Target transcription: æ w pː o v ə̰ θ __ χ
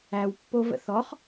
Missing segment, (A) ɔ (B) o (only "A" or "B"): A